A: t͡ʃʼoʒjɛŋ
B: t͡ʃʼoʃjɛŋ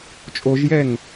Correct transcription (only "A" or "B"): A